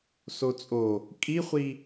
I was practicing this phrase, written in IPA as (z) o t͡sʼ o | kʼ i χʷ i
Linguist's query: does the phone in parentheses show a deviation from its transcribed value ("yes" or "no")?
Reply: yes